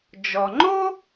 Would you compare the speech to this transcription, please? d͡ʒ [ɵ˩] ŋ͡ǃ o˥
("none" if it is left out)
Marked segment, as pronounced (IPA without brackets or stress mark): ɔ˩